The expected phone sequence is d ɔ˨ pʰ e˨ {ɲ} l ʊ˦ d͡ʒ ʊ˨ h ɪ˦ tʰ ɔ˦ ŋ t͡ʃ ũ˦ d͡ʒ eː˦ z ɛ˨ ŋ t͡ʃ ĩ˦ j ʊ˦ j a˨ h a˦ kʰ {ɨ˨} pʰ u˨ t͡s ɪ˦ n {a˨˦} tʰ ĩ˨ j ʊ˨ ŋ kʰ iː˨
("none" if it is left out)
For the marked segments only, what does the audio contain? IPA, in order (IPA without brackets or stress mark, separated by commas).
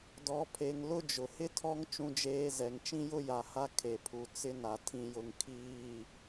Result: ŋ, e˨, a˨